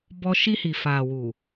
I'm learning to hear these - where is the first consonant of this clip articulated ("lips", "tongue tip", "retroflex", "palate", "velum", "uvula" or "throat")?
lips